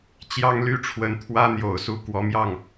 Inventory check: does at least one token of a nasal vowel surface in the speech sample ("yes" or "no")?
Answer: no